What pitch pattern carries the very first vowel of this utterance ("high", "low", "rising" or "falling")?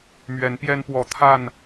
rising